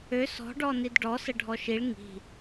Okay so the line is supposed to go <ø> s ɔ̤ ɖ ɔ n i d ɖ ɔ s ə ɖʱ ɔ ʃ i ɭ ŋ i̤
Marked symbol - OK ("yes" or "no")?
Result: yes